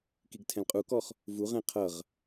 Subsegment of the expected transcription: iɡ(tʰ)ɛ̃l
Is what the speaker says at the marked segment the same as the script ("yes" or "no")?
yes